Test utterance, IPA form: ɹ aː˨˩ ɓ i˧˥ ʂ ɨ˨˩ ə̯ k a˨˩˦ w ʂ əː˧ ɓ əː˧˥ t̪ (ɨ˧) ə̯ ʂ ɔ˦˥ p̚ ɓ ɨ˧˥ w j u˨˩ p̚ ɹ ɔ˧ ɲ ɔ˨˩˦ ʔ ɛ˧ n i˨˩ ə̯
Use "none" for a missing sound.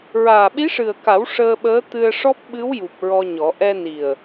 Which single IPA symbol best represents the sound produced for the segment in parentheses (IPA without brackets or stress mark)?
ɨ˧